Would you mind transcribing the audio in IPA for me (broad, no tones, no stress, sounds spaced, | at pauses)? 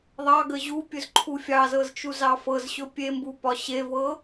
ðˤ ɑ ɡ ə ʑ u pʲ ɵ z ǃʰ u fʲ ɑ z ɤ z t͡ʃ u z ɑ f ɤ z ɕ ɵ pʲ e m b u p ɒ ɕ e v ɤ